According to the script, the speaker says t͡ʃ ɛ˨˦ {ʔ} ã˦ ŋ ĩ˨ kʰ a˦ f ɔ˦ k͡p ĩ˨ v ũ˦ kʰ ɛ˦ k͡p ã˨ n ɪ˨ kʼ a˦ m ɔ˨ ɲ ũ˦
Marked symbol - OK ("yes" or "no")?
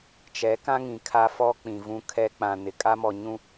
no